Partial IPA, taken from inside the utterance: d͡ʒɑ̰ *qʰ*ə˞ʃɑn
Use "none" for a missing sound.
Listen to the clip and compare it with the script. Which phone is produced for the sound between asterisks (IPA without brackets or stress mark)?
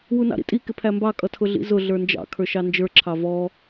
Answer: kʰ